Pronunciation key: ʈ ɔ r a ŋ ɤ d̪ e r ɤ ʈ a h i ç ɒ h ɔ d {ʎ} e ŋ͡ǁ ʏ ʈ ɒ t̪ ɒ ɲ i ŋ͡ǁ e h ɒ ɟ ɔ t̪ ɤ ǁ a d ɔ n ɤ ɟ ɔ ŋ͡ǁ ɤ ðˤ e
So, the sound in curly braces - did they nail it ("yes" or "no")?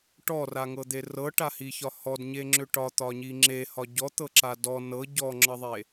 no